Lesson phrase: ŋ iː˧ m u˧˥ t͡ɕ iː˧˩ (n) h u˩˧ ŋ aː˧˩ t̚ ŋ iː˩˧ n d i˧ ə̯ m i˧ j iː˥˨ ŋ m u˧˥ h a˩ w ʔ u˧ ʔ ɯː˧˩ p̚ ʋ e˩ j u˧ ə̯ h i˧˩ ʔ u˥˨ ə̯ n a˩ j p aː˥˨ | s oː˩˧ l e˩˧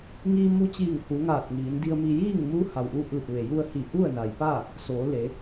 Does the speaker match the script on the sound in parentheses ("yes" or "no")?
no